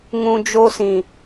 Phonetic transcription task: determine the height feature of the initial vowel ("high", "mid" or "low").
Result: high